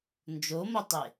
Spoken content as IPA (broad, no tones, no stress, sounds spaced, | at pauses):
n d͡ʒ o m o tˤ e